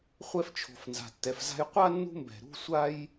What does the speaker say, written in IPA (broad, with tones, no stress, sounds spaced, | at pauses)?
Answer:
χʷ ɛ˦ f t͡ʃʰ o̤˨ f n z a̤˨ tː ɛ˨ f z a̤˦ j qʷ a˥ nː ṳ˦ m b ɛ̤˩ ɾ ṳ˥ sʷ a˥ j